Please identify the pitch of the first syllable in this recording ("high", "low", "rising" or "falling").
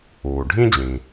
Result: low